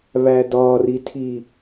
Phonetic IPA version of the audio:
β æ d ɒ r i tʰ i

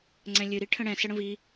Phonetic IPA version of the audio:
ŋ͡ǀ ɛ̃ lʲ ɨ ɾ i ʈʰ ə̃ ɽ ɛ̃ s ə ɽ ə̃ v i

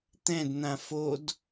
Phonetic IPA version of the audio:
t̪ ɛ̃ d n̪ ã f o d

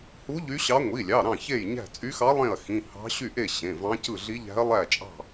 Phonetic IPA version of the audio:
h u˧˥ ʎ y˧˥ ɕ ɑ˧˥ ŋʷ i˩˧˩ lʲ ɑ˩˧˩ ɾ ɑ̃˥˩ ç e˥˩ j ɲ æ̤˥˩ t͡sʼ y˧˥ x ɑ˧˥ lˠ ẽ˥˩ ɐ̯ x ĩ˩˧˩ h ɑ̤˧˥ ɕ y˥˩ ʔ e˥˩ ɕ ẽ˩˧˩ v ɑ̃˧˥ c ɯ˥˩ ɮ i˧˥ ʎ æ̤˧˥ ɐ̯ lˠ æ˥˩ t͡ʃʼ ɑ̤˥˩

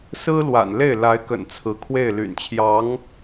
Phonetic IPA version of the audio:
s ɹ̩˥ l w a̰˨˩ n l e˥˩ ɪ̯ l a˧˥ ɪ̯ k ə̰˨˩ n t͡sʰ ɹ̩˧˥ kʰ w e˥˩ ɪ̯ l y̰˨˩ n t͡ɕʰ j ɑ˧˥ ŋ

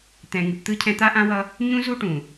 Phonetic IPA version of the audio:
t̪ ɛ̃˨ ŋ ɨ˨ p t̪ ɯ˦ cʰ ɛ̃˦ t̪ a˦ ʔ ã˦ w ʌ˦ | ɲ ũ˦ z u˦ ʈ ũ˨

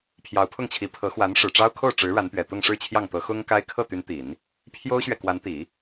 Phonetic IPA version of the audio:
pʰ j ɑ˧˥ ʊ̯ pʰ ʊ˥˩ ŋ t͡ɕʰ i˧˥ pʰ ɤ˧˥ x w a˧˥ n ʂ ɻ̩˨˩ ʈ͡ʂ ɑ˥ ʊ̯ kʰ o˥˩ ʊ̯ ʈ͡ʂ ɻ̩˧˥ ɻ a˧˥ n p ɥ ɛ˨˩ t̪ ʊ˥˧ ŋ ʂ ɻ̩˥˧ t͡ɕʰ j ɑ˥˩ ŋ t̪ ɤ˧˥ x ʊ˥ ŋ k a˥ ɪ̯ kʰ ɤ˥˩ t̪ y˧˥ n t̪ i˨˩˦ n | pʰ j o˥ ʊ̯ ɕ ɥ ɛ˨ k w a˧˥ n t̪ i˨˩˦

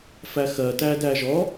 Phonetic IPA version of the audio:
f æ x ɜ t æ d æ ʒ ɔ

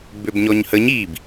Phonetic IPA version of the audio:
b ø b ɲ ɔ ɲ h ə ɲ i b

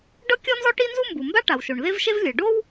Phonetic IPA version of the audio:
ɖ ɤ˥ kʲ ɔ˥ n z ɔ˥ ʈ i˥ n z u˥ m b u˩ m b a˥ ʈ a˩ w ʃ o˩ ɳ ð e˥ v ʃ e˥ v lʲ ɤ˩ ɖ o˥ w

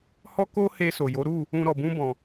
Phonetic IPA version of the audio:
h ɔ˦ k o˦ h e˧ s o˨ j o˨˦ ɾ u˦˨ | ũ˧ ɾ ɔ˨ b ũ˧ b ɔ̃˨

